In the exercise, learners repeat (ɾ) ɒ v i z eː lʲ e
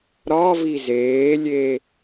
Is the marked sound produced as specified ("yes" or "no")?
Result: yes